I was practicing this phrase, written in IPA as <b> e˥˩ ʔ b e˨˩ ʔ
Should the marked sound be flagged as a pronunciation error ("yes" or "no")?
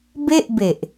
no